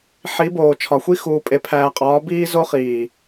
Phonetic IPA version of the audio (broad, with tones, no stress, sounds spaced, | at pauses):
ħ i˨˦ b oː˨ t͡ʃʰ ɒ˨ xʷ i˦ x uː˨ pʼ e˨ pʰ æː˨ qʼ ɒː˨˦ b iː˦ z o˦ χ iː˨